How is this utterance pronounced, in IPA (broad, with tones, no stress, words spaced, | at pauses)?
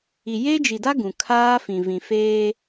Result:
i˨je˦d͡ʒi˨da˦ ɡũ˨kʰaː˦fĩ˨ vĩ˨feː˦